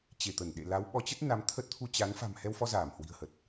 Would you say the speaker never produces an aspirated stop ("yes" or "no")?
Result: no